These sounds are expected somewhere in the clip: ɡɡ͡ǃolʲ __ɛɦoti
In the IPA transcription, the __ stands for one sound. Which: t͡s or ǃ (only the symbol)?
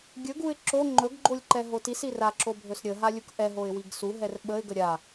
ǃ